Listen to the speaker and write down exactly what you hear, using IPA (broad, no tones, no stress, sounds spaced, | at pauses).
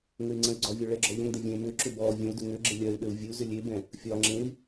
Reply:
ŋ ɘ y̯ ŋ͡ǀ ə̃ y̯ ɡ͡ǀ ɒ vʲ ɔ ɭ ɛ ɡ͡ǁ ɔ ʎ ə̃ ŋ d ɘ vʲ ẽ m ʏ ǁ ʏ b ɔ vʲ ə̃ u̯ d ʏ ŋ ʏ ɡ͡ǁ ɘ lʲ ɜ y̯ ɗ ɘ u̯ vʲ ɘ u̯ z ʏ lʲ e b ɛ̃ | fʲ ɒ ŋ͡ǁ ẽ i̯